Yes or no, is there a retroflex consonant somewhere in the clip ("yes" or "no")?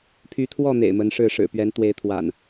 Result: yes